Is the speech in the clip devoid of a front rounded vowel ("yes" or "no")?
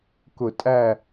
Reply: yes